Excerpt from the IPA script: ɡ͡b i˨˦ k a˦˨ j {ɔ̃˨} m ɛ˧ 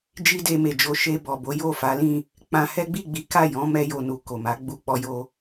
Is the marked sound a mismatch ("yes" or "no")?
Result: yes